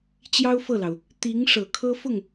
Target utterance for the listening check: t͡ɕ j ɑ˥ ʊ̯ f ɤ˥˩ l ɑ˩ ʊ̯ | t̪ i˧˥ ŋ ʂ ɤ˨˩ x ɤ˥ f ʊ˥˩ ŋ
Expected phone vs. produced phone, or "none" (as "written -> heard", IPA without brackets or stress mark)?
x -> kʰ